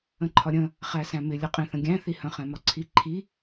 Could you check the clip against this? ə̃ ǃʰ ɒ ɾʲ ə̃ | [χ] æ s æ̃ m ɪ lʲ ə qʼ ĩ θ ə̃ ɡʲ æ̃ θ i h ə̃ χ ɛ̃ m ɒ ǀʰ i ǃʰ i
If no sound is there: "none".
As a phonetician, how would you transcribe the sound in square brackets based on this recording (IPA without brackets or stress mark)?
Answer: χ